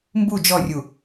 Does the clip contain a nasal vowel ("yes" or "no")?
no